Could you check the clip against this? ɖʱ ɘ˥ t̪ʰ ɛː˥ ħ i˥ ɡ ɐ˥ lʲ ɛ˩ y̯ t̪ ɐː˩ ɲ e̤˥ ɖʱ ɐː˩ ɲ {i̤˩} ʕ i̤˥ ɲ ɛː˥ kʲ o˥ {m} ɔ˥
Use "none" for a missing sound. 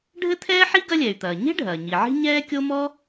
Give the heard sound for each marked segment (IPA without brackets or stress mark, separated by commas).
i˩, m